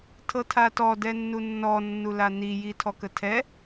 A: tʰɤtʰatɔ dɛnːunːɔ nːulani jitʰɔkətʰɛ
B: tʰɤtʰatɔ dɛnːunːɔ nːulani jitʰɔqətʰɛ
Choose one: A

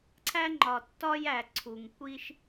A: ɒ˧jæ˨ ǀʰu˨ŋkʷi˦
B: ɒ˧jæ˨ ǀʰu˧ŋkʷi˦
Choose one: A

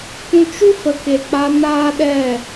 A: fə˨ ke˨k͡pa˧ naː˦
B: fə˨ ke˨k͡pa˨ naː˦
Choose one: A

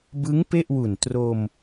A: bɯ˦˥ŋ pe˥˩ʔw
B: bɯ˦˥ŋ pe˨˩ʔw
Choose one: A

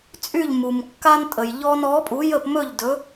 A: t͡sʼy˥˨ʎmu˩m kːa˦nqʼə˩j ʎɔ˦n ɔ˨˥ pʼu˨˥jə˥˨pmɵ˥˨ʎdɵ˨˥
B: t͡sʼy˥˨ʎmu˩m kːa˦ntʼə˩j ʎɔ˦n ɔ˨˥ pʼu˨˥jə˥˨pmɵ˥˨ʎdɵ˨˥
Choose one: B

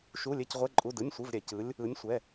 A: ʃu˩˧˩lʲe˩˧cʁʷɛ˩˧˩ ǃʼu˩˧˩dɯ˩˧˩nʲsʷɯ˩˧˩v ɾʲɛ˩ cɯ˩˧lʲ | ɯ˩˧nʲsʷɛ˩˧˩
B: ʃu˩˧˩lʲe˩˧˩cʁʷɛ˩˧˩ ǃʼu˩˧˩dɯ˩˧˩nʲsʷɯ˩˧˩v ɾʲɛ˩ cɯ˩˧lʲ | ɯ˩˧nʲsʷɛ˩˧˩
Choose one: B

